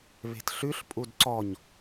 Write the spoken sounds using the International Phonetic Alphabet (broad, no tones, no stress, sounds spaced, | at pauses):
β e̤ t ɬ ʉ ɬ pʼ u d ǀ ɔ ɲ